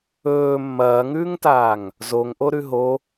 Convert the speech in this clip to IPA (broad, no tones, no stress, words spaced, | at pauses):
ɵː mːɐːŋʉːŋtaːŋ | zoŋ ʔoɾʉɦo